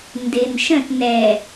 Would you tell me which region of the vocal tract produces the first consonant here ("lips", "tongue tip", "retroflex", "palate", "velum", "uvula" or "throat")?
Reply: tongue tip